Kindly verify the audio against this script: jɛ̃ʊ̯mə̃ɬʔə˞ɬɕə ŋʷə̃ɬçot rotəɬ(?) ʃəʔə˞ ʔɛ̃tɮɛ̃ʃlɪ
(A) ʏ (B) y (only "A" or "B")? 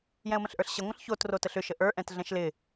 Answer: A